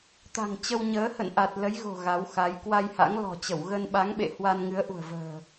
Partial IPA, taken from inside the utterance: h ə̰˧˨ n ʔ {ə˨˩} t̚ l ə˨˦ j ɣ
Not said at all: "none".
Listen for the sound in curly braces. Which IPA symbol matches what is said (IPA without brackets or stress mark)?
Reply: a˨˩